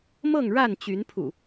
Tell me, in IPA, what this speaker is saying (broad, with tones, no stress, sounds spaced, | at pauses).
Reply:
m ɤ˥˨ ŋ ɻ a˥˨ n t͡ɕ y˨˦ n pʰ ṵ˨˩